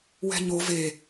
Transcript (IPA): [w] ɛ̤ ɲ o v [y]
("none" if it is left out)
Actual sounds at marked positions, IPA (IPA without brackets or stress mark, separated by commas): w, e